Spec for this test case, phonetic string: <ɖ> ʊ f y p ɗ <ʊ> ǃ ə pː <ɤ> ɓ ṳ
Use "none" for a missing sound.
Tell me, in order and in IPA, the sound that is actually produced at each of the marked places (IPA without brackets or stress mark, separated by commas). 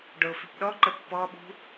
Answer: ɖ, ɔ, ɔ